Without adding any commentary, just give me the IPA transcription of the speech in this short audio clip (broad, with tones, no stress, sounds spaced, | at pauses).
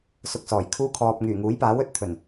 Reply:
s ʊ˧ k̚ s ɔː˨˩ j kʰ uː˥ kʰ ɔː˧ p̚ ŋ yː˨˩ ŋ uː˨˥ j p aː˨˥ w ɵ˨˥ t̚ t̪ʰ ɵ˨˩ n